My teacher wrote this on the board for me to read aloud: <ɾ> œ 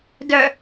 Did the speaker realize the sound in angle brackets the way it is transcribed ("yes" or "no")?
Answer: no